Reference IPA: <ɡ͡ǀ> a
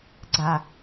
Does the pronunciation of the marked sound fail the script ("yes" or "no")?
no